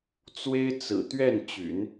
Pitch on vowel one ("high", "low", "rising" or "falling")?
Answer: high